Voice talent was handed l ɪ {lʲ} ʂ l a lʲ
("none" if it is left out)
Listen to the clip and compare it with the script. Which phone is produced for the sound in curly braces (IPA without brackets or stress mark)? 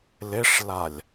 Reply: none